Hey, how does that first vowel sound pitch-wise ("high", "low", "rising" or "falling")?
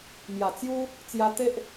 low